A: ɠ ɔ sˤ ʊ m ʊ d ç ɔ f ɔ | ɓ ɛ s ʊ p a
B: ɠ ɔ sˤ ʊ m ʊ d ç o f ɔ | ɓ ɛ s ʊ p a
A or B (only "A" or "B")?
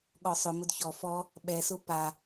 A